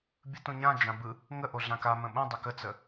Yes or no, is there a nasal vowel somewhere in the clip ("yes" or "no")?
yes